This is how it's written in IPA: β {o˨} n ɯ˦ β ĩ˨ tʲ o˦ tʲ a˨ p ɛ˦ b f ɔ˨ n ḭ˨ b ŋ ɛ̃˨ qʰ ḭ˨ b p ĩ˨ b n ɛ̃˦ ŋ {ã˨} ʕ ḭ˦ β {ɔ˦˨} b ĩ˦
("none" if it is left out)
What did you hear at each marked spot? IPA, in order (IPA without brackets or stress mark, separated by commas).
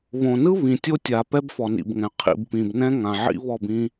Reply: õ˨, ã˨, ɔ˦˨